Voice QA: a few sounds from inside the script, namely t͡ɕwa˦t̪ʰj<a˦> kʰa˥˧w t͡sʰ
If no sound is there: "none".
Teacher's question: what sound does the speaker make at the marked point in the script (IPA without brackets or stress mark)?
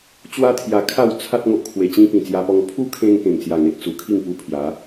a˧